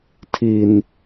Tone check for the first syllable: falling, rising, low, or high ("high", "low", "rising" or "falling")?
low